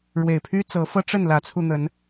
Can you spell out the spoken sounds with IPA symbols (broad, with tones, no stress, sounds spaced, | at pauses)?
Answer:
ɻ w e˨˩ ɪ̯ pʰ y˦ t͡s ɤ˨˦ f ɤ˦ ʈ͡ʂ ə˥˨ n l ä˨˦ t͡sʰ u˧ n̪ ə˨˦ n